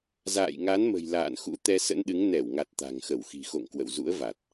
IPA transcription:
z a̰ː˧˨ j ŋ a˨˦ n m ə̤˨˩ j l a̰ː˧˨ n x ṵ˧˥ t̪ ɛ˧ s ə̰˧˥ n ɗ ɨ˨˦ ŋ n ɛ˧˩ w ŋ a˨˩ t̚ t̪ a̤˨˩ ŋ x ə˧˩ w x i̤˨˩ x o̰˧˨ ŋ k w ə̰˧˨ w z ṵ˧˥ ə̯ v a˨˩ t̚

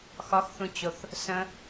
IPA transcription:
x ɒ x θ ũ t͡ɕ o θ | s ə̃

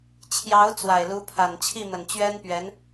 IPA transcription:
t͡ɕʰ j ɑ˧˥ ʊ̯ t͡s w a˨˩ ɪ̯ l u˧˥ pʰ a˨˩ n t͡ɕʰ i˥˩ m ə˨˩ n t͡ɕ ɥ ɛ˥ n p ɥ ɛ˧˥ n

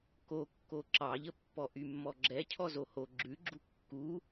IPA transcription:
k o kː o ǁ ɑ ʎ ə pː ɔ ʔ y mː ɔ ɡ͡ǁ ɛ cʰ ɔ z o h o ɡ͡ǁ ʉ ɡ͡ǁ u kː u

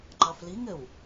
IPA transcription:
ŋ͡ǃ ɑ f l i ŋ ɘ w

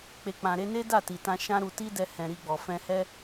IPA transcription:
k͡p e˨ k͡p ã˨ ɾ e˧ n e˦ d a˦˨ t i˨ t ã˧ ʃ ã˦ ɾ u˧ t i˦ d ɛ˧ h ɛ̃˨ ɾ i˧ ɡ͡b ɔ˨ f ɛ̃˧ h ɛ˦

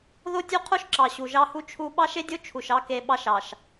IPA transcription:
ð o˦ tʲ u˦ qʰ o˦ ʃ ǁ ɑ˨ ɕ u˨ ʒ ɑ˦ h u˦ t͡ʃʰ u˦ ɓ ɑ˦ ʃ e˦ dʲ o˦ t͡ʃʰ u˨ ʃ ɑ˦ k e˨ ɓ ɑ˦ ʃ ɑ˨ ʃ

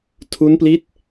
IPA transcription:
tʰ u˦˥ n p l i˦˥ t̚

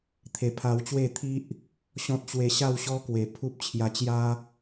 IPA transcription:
t̪ʰ e˧ pʰ a˧ w t͡ɕ w e˥˧ t̪ʰ i˦ ʔ | ɕ ɔ̃˦ t̚ t͡ɕ w e˧ ɕ a˥˧ w ɕ ɔ˦ k w e˨˩ pʰ u˦ p̚ t͡ɕʰ j a˧ t͡ɕ j a˦

